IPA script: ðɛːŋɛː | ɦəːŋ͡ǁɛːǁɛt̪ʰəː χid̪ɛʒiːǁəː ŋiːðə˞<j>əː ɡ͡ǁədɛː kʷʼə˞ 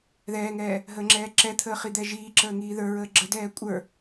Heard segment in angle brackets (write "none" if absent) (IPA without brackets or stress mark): ɹ